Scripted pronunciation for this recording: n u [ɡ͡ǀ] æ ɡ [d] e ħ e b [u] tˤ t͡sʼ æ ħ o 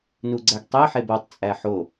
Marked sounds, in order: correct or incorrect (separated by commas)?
correct, incorrect, incorrect